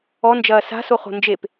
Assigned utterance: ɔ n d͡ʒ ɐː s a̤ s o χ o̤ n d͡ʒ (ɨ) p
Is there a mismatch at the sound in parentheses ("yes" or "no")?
yes